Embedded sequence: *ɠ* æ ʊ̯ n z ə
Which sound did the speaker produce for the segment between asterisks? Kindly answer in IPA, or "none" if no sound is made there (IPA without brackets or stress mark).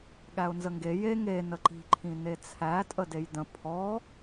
ɠ